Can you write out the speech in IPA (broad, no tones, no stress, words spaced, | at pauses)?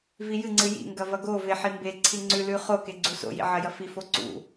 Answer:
vijɨŋ͡ǀɨ jḭŋɡɐ vɐɡove ħimbeǀʰi ŋ͡ǀʉlʉ χoke ɡ͡ǀuso̰jḭ ʕɐjɐfifo ǀṵ